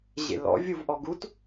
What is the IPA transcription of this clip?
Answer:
ʑ ḛ l ɔ̰ vʲ u v ʔ ɔ ɡ u t

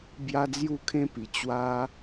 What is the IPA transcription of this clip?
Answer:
b j a˦ d͡z j u˥˧ kʰ ẽ˦ p i˨˩ t͡ɕ w a˦

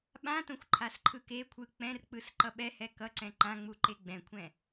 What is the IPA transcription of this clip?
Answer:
ɓ ã t õ xʷ ǃʰ a s ǃʰ ɯ k e kʷʰ ɯ k͡p ɛ̃ r k͡p ɯ s ǃ ʌ ɓ ɛ h ɛ k ʌ ǀ ɛ̃ ǃ ã ŋ͡m u ǃ e ɡ͡b ɛ̃ kʷʰ ɛ̃

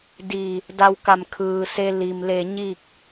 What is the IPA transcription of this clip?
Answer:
d i˧˩ | d a˧ w k a˧˩ m kʰ ɯː˩ s e˧ l i˩ m l e˧˩ ɲ i˥˨ k̚

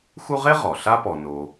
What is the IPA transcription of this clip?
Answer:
x u˦ ʁ e˥ ʁ ɔ˩ ɬ a˥ p ɔ˨ n o˨

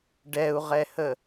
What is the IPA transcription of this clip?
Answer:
ɖ ɛ u̯ ʁ ɛ h ə

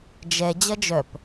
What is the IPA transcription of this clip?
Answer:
d͡ʒ ɛ d͡ʑ ɐ d͡ʒ œ p

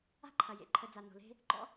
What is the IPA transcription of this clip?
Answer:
a̤˥ ǃʰ ɐ˩ j ḛ˩ ǃʰ ə˨ d͡z a˩ n o̤˩ l e̤˦ | ɡ͡ǃ ɔ̰˥

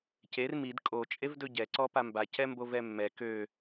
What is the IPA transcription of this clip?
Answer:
c e r m i d kʼ o t͡ʃʼ e v d ɵ ɟ ɛ ǀ ɔ p a m b a c ɛ m b o v ɛ mː ɛ k ø

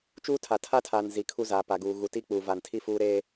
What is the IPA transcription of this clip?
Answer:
t͡ʃ uː˦ tʰ a˨ tʰ a˦ tʰ aː˨ n z i˨ kʰ u˦ z aː˨ p a˨ ɡ uː˨ ɣ u˨ t i˦ k͡p uː˨ v a˨ n tʰ i˦˨ f uː˦ ɾ eː˦

